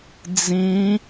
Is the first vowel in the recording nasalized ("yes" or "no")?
yes